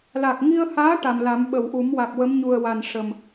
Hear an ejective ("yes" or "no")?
no